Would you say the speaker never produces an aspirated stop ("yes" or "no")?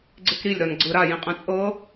yes